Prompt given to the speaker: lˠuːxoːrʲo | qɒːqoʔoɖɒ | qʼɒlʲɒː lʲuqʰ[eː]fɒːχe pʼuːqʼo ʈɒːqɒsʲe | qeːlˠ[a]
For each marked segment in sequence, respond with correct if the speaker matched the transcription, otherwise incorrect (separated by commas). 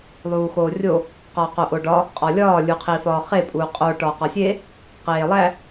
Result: incorrect, incorrect